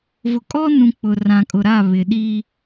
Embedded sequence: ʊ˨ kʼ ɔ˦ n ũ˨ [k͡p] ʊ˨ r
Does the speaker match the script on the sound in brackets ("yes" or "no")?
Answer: yes